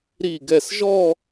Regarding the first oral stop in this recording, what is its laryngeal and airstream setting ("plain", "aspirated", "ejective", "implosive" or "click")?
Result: plain